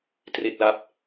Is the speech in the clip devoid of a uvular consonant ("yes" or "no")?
yes